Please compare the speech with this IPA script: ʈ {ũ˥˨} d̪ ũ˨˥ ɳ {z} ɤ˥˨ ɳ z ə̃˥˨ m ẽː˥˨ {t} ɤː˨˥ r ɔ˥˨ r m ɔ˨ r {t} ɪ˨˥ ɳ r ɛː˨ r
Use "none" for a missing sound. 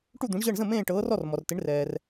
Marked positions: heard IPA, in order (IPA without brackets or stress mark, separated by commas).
u˥˨, ʑ, ʈ, t